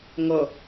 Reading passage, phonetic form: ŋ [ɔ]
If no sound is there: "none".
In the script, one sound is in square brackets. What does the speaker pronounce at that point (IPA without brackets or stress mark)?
ʌ